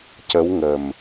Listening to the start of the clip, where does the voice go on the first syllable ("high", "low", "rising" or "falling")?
rising